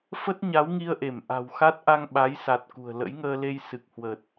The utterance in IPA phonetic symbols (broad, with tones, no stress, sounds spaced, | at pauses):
f ə˦˥ t̚ ɲ a˨˦ w ŋ i˧ ə̯ ʔ e˧˩ m ʔ a̤˨˩ w x a˦˥ t̚ ʔ a˧ ŋ ɓ a˨˦ j s a˨˩ t̚ k ṳ˨˩ ə̯ l ə̰˧˥ j ŋ əː˧ l e˧ j s ɨ˨˩ k̚ h w ə˨˩ t̚